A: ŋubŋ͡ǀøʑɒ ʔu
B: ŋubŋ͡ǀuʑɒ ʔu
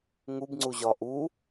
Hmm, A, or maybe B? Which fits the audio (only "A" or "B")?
B